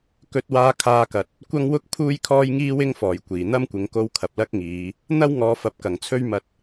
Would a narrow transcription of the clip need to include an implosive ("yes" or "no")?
no